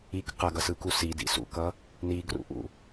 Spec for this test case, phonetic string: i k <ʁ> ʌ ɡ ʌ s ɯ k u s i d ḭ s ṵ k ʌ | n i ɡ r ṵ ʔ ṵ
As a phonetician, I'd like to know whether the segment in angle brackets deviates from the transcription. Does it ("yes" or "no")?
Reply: yes